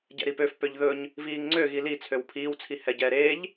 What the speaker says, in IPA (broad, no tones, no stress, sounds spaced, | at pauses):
ɟ ɛ̰ ɾ i p ø f p ø ʎ ð ɵ ɲ | v iː ŋ ŋ͡ǀ ø ɣ i l i t͡sʰ ø w pʰ iː w t͡sʰ i h ɛ ɟ ɛː ɾ eː ʎ